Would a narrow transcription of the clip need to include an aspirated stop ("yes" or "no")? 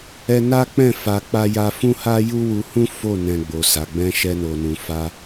no